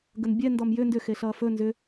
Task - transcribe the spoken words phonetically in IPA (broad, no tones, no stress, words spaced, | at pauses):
ɡənbʲɛ ndɔmjʏ ndʏ xeɬʌːfɵ nzʏ